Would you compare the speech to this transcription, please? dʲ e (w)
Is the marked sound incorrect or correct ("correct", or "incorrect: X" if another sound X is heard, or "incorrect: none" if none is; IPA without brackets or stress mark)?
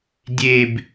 incorrect: b